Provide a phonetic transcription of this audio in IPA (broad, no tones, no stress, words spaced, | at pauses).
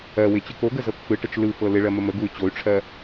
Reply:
ɜ wɪt͡ɕɯk oɡə zɤkfɯʈət͡ʃ lɯfɤ lɪɭɜ məməɡuy̯ t͡ɕoy̯ʈ͡ʂʰɜ